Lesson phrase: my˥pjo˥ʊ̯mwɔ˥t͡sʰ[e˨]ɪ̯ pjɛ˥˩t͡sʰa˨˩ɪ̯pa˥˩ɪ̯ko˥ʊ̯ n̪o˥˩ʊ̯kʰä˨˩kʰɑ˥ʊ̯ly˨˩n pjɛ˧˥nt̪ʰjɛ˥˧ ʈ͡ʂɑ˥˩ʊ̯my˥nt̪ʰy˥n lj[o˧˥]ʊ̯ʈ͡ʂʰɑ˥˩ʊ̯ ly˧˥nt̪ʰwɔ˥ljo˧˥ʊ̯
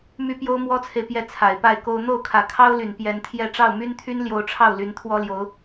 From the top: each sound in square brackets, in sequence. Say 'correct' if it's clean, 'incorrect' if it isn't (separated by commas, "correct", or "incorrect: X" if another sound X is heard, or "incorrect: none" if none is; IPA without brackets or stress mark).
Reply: correct, correct